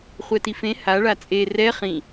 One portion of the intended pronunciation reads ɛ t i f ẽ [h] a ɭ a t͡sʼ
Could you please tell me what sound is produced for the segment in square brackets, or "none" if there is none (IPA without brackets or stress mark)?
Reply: h